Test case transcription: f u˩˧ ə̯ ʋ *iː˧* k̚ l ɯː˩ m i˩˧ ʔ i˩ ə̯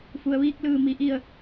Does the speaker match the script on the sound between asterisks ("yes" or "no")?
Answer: yes